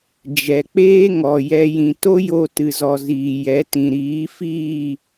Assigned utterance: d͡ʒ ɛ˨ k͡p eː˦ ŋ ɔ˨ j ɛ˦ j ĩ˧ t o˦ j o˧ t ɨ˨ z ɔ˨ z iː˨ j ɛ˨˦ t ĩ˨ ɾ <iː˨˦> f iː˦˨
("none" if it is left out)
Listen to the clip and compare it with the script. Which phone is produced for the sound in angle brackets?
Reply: iː˨˦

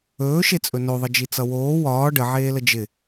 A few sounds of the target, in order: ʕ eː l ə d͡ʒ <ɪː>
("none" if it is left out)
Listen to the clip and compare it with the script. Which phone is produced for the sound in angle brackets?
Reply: ɪ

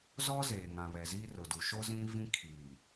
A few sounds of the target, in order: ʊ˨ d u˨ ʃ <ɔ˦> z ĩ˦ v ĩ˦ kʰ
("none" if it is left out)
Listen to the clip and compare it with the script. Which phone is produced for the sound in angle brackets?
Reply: o˦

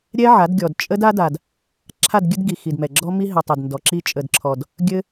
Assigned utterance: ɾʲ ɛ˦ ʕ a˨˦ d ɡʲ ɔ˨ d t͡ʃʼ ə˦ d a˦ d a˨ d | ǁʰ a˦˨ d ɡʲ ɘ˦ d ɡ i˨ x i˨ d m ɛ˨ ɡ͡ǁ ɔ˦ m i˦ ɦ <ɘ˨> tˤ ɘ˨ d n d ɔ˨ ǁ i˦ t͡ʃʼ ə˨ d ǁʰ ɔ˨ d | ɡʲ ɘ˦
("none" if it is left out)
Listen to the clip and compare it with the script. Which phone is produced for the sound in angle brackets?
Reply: ɘ˨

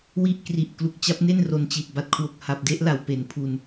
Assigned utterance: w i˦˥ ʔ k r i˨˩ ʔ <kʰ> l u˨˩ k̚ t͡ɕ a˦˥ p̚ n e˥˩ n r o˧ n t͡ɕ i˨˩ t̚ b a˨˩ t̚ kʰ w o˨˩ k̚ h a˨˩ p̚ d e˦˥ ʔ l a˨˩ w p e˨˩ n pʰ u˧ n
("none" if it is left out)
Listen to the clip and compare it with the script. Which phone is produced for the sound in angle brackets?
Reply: k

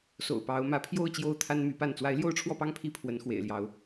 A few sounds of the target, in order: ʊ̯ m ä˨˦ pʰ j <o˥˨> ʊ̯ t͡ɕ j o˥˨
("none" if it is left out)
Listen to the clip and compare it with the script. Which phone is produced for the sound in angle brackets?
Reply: o˥˨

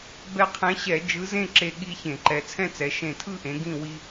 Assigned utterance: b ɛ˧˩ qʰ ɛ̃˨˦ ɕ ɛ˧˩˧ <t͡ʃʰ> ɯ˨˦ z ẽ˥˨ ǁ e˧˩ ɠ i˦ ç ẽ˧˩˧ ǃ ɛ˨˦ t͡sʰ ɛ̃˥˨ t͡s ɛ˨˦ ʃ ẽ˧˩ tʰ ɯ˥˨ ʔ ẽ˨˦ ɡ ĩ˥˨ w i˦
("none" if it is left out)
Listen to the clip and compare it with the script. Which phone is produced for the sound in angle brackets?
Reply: d͡ʒ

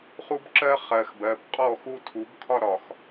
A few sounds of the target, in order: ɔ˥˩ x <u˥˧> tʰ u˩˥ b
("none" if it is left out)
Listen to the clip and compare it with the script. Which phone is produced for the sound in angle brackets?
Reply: u˥˧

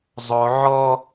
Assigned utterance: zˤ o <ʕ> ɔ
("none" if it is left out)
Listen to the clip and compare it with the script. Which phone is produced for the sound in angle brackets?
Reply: ʕ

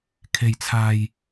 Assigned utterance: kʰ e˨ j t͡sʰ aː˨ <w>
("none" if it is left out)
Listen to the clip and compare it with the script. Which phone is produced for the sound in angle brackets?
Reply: j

